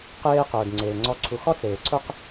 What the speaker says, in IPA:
q eː˦ q ʊː˨ d ŋ͡ǀ eː˨ ŋ͡ǀ ɔ˧ ǀʰ u˨ x ɔ˧ t͡s eː˨ ǀʰ ʊ˦ q

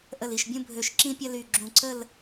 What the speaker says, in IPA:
ʔ ə˧˩ l i˧˩ ʃ bʲ ũ˥ bʱ ø˧ ʃ ǁ ĩ˥ pʲ ɐ˥ l y˧˩ ɡ͡ǁ ũ˧˩ ǀ ə˥˧ l

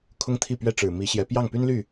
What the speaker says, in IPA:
kʰ ʊ˥ ŋ t̪ʰ i˥˩ p ɥ ɛ˥ ʈ͡ʂ ɻ̩˨˩ m i˧˥ ɕ j ɛ˧˥ p j ɑ˥˩ ŋ p y˥ n l y˥˩

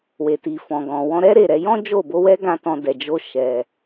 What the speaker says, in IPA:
w e˨ t i˨ f ɔ̃˨ ɡ ɔ̃˨ w ɔ̃˧ ɾ ɛ˦ ɾ e˦˨ ɾ ɛ˧ j ɔ̃˦ d͡ʒ o˦˨ b o˧ w ɛ˦ ɡ ã˦ t ɔ̃˧ d ɛ˨ d͡ʒ o˧ ʃ ɛ˨

